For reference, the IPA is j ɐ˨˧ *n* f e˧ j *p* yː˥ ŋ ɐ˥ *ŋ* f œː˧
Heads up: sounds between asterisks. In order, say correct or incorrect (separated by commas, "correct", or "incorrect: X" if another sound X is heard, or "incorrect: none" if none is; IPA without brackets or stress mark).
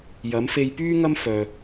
incorrect: m, correct, incorrect: m